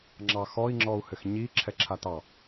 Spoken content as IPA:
ŋ͡ǁ ɑ x ɔ i̯ ŋ͡ǁ ɔ u̯ h ɘ x ɲ i ǁʰ ɛ ǁʰ a t ɑ

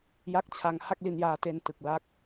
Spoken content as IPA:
j a˦˥ k̚ t͡ɕʰ a˧ ŋ h a˥˩ k̚ l i˧ n j aː˧ t e˧ n t ɯ˨˩ k̚ l a˦˥ k̚

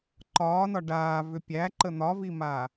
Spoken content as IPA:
ǃ ɒː n ɒ ɖ aː v ʏ pʲ æ ǃ ə n̪ ɒ v i m aː

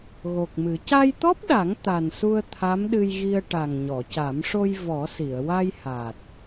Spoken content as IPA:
ɣ o˨˩ k̚ m ɨ˨˩˦ c a˧ j t̪ ɔ˦˥ p̚ ɗ a˨˩˦ ŋ t̪ a˨˩ n s u˧ ə̯ t̪ʰ a˧˥ m ɗ ɨ˧ j ɣ i˧ ə̯ ʈ a˨˩ ŋ ɲ ɔ˨˩˨ c a˨˩˦ m ʂ o˧ j v ɔ˨˩˦ s i˨˩˨ ə̯ w a˧ j h a˨˩ t̚

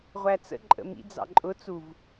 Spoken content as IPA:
ʁʷ æ t͡s ə̰ ǃʼ ə̰ m ḭ d͡z ɑ̰ ǃʼ ʊ t͡s u v

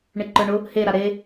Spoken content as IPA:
ɳ e ǃ ə˞ ɳ ʊ | h e ɾ a ɾ e

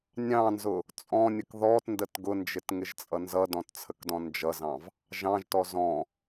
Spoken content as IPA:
nʲ ɑ̃ n z ʊ | t͡sʼ ɔ̃ nʲ ə k ð ɔ t n d ə t ɡ ʊ n d͡ʒ ɪ t ŋ ɪ ʒ t͡sʼ ʌ n z ʌ d ɔ̃ t t͡sʰ ə k d ɔ̃ n d͡ʒ ʌ z ɑ̃ v | ʒ ɑ̃ ʒ t ɔ z ɔ̃

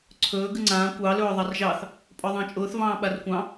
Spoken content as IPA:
ǀʰ ɵː ɡ ɨ ŋ͡ǀ ãː kʷ ɑ l ɵː ðˤ ɑ r ʒ ɑ θ | pʼ ɔ ðˤ ɑ̃ t͡ʃʼ ʊː θ v ɑ̃ː ɓ a r kʷ ɑ̃

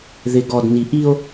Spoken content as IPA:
ð ɪ˨ ɡ ɔ˨ d n i˨ ʔ i˦ o̯

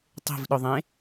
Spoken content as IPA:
tˤ e̤ v ɗ ʊ ðˤ ẽ

